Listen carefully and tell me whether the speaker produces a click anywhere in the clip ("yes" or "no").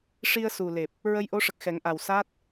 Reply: no